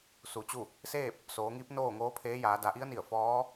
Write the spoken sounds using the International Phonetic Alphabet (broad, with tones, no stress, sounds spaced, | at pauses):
s u˩ t͡ɕ u˥˨ | s eː˥˨ p̚ | s oː˩˧ ŋ iː˧˥ p̚ n oː˥˨ ŋ oː˧˥ pʰ eː˧˥ j aː˩˧ d a˩˧ ʔ i˧˥ ə̯ n i˧˩ ə̯ f ɔː˧˥